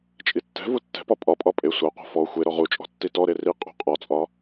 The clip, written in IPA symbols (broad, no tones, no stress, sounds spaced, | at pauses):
t͡ʃʼ i tː ɛ̤ v u tː ɛ̤ p ɒ pʼ ɒ pʼ ɒ pʼ e sʷ a qʷ a̤ f ɔ xʷ e ɾ ɔ ʁ u t͡ʃʼ ɔ̤ tː i t ɔ ɾ e r i qʼ ṳ qʼ ɒ t͡sʼ ɒ